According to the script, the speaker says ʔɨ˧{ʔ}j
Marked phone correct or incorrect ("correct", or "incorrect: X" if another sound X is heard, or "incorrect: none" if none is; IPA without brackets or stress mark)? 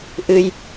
incorrect: none